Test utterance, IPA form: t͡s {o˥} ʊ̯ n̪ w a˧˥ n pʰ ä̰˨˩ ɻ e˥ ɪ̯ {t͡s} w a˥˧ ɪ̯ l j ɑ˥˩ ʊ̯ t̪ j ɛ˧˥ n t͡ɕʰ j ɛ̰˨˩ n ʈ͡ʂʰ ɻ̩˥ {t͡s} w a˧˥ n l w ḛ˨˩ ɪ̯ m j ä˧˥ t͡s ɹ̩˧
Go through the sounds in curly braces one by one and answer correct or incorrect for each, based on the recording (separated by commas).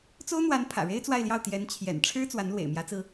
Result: correct, correct, correct